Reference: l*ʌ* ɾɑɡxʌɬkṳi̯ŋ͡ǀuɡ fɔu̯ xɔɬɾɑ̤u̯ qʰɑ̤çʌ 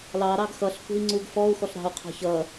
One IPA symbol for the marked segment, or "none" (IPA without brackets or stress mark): ɑ